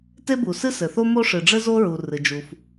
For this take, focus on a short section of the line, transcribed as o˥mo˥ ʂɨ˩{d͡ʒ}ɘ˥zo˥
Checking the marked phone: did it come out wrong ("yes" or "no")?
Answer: yes